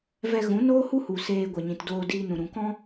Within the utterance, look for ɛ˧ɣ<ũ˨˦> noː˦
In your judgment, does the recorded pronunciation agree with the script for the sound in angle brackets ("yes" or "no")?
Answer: yes